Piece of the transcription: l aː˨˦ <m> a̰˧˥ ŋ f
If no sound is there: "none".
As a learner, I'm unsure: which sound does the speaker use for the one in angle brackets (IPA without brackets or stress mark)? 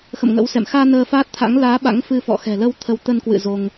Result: ɓ